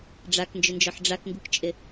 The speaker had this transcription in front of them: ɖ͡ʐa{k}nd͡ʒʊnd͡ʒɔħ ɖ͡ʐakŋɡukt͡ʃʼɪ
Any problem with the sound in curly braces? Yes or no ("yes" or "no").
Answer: no